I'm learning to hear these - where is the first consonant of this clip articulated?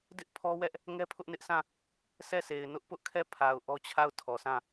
tongue tip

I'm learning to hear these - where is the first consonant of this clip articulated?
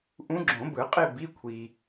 throat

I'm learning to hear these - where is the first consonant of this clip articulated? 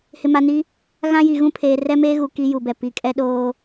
throat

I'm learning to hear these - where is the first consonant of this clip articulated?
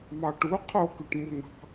lips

